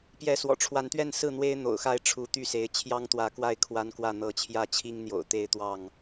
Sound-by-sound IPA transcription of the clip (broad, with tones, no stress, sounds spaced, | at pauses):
p j ɛ˨˦ s w ɔ̰˨˩ ʈ͡ʂʰ w a˨˦ n t̪ ɥ ɛ˥˨ n s ɹ̩˥˨ n̪ w e˦ ɪ̯ n̪ o̰˨˩ ʊ̯ x a˥˨ ɪ̯ ʈ͡ʂʰ u˨˦ t̪ y˥˨ s e˨˦ ɪ̯ t͡ɕʰ j ɑ˦ ŋ t̪ w ä˨˦ k w a˥˨ ɪ̯ kʰ w a˦ n k w ä˥˨ n̪ ɤ˨˦ t͡ɕʰ j ä˥˨ t͡ɕʰ i˦ ŋ n̪ j o̰˨˩ ʊ̯ t̪ e˥˨ ɪ̯ t̪ w ɑ˥˨ ŋ